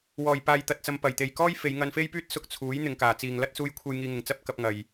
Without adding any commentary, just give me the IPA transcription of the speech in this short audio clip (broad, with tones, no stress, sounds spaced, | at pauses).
w ɔː˨˩ j p aː˨ j t̪ ɐ˨ t̚ t͡s ɐ˨ m p ɐ˨˩ j t̪ e˨ j k ɔː˥ j f e˨˧ j ŋ ɐ˧ n f e˥ j p yː˥ t̚ s ʊ˧ k̚ t͡sʰ uː˨˥ j n̪ ɪ˨ ŋ k aː˨˩ t͡s iː˨ ŋ l ɐ˥ t̚ s uː˧ j kʷʰ e˧ j ŋ iː˧ ŋ ɪ˨ ŋ t͡s ɐ˥ p̚ k ɐ˧ p̚ ŋ ɐ˨ j